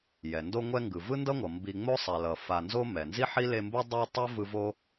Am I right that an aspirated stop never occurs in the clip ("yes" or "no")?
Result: yes